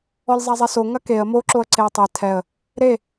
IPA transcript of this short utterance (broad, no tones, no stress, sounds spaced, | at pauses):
ɔ lʲ zˤ a zˤ ɛ s o ŋ ɐ k e ə̯ m o ǁ o ə̯ ǀ e ə̯ tˤ e tʰ ɛ ə̯ | ɾ e